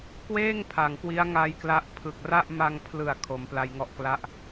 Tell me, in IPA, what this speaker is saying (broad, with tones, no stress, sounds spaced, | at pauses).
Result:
k w eː˥˩ ŋ pʰ a˨˩ ŋ k w i˦˥ a̯ ŋ a˦˥ j k l a˦˥ ʔ pʰ ɯ˨˩ k̚ r a˥˩ ʔ m a˧ ŋ pʰ l ɯ˨˩ a̯ kʰ o˩˦ m p l a˧ j ŋ ɔ˥˩ ʔ k l a˥˩ ʔ